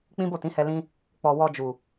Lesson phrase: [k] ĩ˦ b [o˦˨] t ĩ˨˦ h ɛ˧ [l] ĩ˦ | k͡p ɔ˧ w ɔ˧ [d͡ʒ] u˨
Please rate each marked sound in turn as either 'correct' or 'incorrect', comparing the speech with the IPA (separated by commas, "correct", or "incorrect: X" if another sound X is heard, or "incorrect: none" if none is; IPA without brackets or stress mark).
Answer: incorrect: k͡p, correct, correct, correct